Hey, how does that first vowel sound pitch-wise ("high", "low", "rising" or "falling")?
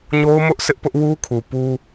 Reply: high